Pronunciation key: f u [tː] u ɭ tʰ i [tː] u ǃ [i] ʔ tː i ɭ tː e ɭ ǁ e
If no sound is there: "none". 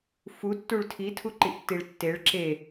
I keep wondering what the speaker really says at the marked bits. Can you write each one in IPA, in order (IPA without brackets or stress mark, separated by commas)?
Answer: tː, tʰ, i